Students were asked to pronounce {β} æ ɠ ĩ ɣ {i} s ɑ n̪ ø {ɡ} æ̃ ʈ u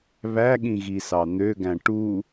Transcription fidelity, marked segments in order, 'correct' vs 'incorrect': correct, correct, correct

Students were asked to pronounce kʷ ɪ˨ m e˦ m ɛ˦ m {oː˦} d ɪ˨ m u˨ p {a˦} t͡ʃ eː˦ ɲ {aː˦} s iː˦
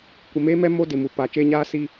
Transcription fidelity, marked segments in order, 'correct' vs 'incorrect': incorrect, incorrect, correct

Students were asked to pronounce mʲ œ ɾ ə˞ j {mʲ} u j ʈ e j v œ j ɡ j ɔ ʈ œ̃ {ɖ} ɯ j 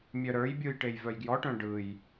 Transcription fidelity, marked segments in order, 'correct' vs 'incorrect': incorrect, correct

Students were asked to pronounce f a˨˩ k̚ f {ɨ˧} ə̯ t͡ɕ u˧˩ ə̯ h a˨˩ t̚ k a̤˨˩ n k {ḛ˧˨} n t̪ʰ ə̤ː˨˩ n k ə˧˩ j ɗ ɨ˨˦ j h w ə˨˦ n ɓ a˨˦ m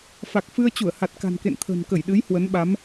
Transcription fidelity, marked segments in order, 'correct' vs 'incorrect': correct, correct

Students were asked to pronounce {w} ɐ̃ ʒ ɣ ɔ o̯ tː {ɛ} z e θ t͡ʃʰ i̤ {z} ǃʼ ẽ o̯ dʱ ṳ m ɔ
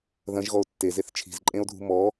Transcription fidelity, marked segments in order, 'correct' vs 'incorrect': incorrect, incorrect, correct

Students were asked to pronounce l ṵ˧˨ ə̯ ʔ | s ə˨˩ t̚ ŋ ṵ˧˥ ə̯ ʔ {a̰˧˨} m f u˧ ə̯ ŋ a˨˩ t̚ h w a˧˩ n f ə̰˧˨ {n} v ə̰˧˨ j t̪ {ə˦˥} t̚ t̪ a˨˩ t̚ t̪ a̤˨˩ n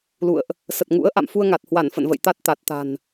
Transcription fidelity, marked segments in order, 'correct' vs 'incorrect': correct, correct, incorrect

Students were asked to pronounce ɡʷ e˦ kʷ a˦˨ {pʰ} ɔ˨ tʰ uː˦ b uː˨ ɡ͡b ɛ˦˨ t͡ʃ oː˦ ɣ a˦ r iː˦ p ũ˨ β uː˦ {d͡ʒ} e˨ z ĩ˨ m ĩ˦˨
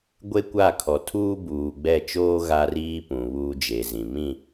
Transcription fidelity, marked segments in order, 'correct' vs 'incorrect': incorrect, correct

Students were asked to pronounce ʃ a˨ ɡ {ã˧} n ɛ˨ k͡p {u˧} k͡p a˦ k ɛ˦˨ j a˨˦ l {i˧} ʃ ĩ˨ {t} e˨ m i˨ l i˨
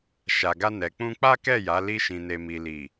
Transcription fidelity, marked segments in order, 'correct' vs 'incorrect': incorrect, incorrect, correct, incorrect

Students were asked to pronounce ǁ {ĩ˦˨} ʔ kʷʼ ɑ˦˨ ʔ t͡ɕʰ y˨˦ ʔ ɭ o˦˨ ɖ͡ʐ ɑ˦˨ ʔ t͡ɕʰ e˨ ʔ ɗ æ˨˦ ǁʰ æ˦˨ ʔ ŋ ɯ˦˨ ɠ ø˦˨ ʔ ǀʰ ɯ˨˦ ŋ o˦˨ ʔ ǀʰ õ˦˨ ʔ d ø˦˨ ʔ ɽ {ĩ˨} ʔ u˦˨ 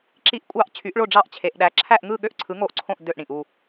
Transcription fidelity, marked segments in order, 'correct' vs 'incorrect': incorrect, correct

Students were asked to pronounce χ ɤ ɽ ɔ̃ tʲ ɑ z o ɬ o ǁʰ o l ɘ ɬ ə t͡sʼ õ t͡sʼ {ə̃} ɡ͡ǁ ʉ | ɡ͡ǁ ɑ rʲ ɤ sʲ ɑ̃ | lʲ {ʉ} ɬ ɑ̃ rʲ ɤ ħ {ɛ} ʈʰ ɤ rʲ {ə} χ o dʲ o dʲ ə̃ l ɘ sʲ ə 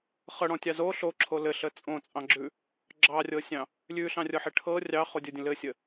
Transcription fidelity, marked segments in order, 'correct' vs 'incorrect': incorrect, correct, incorrect, incorrect

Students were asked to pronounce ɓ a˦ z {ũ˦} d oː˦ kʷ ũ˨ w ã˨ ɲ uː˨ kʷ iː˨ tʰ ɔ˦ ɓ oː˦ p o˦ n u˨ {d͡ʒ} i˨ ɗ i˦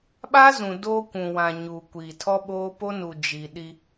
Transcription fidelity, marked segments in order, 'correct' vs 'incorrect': incorrect, correct

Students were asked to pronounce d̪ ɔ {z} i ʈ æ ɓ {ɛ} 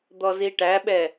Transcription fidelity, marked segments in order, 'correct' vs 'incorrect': correct, correct

